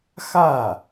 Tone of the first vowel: falling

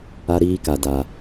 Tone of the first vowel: high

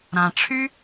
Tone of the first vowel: low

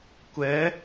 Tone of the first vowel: rising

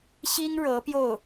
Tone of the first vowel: high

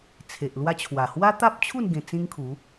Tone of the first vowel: low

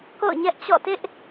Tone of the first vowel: falling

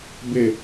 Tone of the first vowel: falling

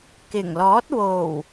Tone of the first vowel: low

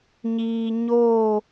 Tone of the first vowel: low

